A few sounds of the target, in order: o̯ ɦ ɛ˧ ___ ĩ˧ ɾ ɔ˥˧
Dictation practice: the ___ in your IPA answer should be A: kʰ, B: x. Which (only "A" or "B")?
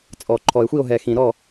B